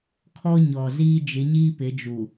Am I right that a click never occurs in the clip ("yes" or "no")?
yes